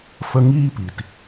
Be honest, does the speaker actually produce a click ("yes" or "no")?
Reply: no